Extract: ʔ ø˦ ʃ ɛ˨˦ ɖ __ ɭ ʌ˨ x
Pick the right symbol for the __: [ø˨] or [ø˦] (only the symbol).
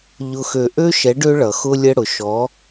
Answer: ø˦